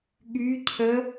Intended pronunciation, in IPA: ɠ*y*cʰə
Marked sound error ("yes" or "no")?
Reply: no